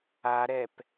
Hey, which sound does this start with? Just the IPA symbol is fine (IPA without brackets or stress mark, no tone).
a